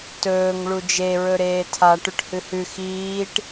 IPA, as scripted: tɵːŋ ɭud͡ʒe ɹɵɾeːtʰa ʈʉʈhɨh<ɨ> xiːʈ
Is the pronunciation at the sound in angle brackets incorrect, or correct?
incorrect